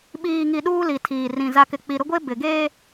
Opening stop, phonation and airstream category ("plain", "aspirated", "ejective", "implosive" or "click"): implosive